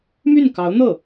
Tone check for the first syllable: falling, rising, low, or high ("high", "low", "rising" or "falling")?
falling